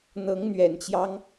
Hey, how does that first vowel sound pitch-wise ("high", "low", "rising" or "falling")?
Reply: rising